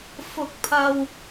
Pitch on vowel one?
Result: low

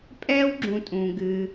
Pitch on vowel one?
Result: high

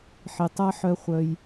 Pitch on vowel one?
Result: low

